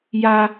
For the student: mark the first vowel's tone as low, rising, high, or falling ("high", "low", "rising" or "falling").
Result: high